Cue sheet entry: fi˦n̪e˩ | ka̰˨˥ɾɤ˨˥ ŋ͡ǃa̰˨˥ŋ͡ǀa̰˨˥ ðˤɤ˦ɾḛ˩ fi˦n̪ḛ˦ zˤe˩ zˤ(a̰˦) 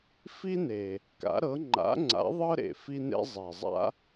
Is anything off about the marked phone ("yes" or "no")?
no